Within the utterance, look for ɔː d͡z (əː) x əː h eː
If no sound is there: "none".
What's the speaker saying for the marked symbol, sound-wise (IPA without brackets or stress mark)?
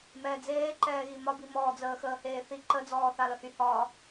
əː